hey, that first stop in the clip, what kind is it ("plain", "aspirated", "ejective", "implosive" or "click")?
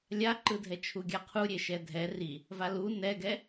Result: click